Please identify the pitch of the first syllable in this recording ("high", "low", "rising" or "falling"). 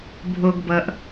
low